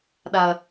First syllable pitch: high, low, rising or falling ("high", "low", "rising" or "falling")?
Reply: low